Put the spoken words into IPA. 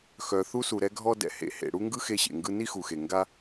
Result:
x œ˩ θ u˥ s u˩ ɾ ɛ˥ ɡʱ ɔ˥ d ɛ̰˩ h ḛ˩ h ḛ˩ ɽ u˥ ŋ ɡ ɯ˥ x e˥ ɕ ḛ˩ ŋ ɡ ɯ˥ n i˥ x u˩ x e˩ ŋ ɡ a˥

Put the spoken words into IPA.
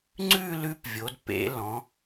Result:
ŋ͡ǀ ʉ˥˧ l ʉ˦˥ p vʲ o˩˧ d p ḛ˩˧ l ɔ̃˩˧

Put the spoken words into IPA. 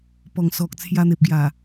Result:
p ɔ˨˩ ŋ s ɔ˨ k̚ t͡sʰ j a˧ n̪ e˨ p̚ ɡ j a˨˩

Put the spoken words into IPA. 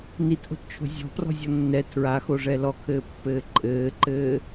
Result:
n i t ʔ o̤ t t͡ʃʰ o̤ zʲ ɔ̤ p r ɔ̤ zʲ ɔ nː ɛ tʰ ɹ a x o ʐ ɛ l ɔ kʰ ɘː pː ɘː ǃʼ ɘː ǃ ɘː

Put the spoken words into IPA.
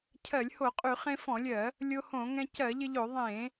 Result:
cʰ ɜ˧˩˧ lʲ h o˧˩˧ qʼ y˧˩˧ χ ẽ˧ f ɔ̃˧˩˧ lʲ ɜ˧˩˧ | lʲ o˧ h õ˧˩˧ ŋ ɛ̃˧ c ɜ˧˩˧ ʎ ɪ˧ ʎ o˧˩˧ ðˤ ẽ˧˩˧

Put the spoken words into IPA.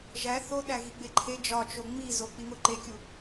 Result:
ʒ æ θ o ɗ æ ɣ i ɡ͡b e ǃʰ e d͡ʒ ɒ t͡ʃ o ŋ͡m i z o k͡p i ŋ o ǃ e kʲ u

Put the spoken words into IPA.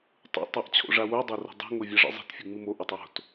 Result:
tˤ ṵ tˤ a ʔ t͡ɕʰ o̰ ʐ a w o dˤ a r o̤ dˤ o̤ ŋ o vʲ a ʐ ḭ zˤ i̤ t fʲ u ŋ͡m ɨ m o ʔ ɵ tˤ w o̤ t

